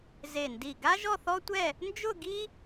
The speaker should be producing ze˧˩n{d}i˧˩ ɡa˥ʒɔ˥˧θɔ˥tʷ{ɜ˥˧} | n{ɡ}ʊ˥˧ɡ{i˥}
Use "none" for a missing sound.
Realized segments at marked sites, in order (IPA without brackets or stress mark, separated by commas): d, ɛ˥˧, d͡ʒ, i˥